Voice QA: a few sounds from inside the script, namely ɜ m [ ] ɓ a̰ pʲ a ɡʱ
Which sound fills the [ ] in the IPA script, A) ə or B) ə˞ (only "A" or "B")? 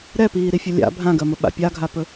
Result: A